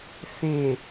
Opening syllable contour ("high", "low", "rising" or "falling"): low